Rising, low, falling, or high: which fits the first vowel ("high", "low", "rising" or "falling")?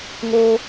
low